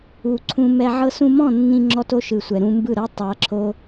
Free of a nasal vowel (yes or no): no